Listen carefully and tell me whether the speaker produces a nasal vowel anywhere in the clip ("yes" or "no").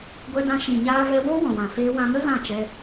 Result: yes